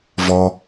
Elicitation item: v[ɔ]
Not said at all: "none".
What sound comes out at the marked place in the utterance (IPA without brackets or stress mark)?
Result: ɔ